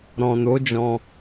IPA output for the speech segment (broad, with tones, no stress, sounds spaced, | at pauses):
ɾ ɔ̃˨ n o˨˦ d͡ʒ ɔ̃˧